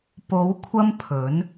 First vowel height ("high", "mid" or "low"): mid